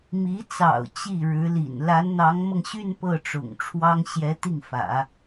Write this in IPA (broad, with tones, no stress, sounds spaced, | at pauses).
m i˧˥ t͡s ɑ̰˨˩ ʊ̯ t͡ɕ i˥˩ ɻ ɻ̩˧˥ l ḭ˨˩ n l a˧˥ n n̪ ɑ˧˥ ŋ m ɤ˧ ŋ ɕ y˥˧ n p ɤ˥˩ ʈ͡ʂ ʊ̰˨˩ ŋ ʈ͡ʂʰ w ɑ˥ ŋ ɕ j ɛ˧˥ t̪ i˥˩ ŋ f ä̰˨˩˦